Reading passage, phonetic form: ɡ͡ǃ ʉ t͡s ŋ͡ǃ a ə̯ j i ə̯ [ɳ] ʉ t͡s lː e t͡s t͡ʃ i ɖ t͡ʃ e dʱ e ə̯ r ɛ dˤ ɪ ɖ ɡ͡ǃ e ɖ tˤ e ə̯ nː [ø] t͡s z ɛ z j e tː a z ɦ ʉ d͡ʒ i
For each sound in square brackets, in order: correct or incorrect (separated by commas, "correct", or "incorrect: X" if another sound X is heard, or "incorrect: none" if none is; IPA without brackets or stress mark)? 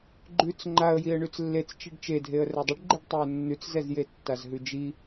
correct, incorrect: ʉ